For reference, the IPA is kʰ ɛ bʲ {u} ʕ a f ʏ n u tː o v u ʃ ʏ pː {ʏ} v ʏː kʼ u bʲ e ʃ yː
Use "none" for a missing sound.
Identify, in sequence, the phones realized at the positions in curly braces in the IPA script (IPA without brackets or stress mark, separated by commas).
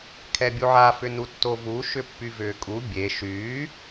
u, y